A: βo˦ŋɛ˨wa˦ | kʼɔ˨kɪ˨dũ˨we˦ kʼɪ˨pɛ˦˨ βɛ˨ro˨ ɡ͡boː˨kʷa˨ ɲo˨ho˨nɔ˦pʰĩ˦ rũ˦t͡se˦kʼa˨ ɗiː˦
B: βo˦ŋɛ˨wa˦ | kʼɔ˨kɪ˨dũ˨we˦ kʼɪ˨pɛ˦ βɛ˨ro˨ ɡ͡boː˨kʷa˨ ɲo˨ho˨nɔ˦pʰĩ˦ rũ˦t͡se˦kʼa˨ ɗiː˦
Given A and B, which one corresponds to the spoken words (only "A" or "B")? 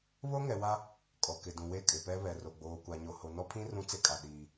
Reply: B